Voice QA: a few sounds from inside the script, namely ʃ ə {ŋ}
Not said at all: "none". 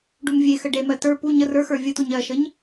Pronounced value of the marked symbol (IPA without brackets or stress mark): ɲ